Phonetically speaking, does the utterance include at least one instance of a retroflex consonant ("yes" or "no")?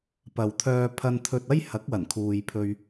no